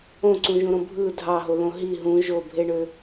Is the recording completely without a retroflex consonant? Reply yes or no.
no